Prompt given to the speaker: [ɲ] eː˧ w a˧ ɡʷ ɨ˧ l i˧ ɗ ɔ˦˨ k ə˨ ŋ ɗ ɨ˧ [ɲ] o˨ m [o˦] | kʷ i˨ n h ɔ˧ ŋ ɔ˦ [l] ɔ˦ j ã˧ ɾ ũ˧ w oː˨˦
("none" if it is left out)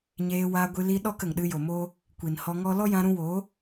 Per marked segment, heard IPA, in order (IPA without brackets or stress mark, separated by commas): ɲ, j, oː˦, l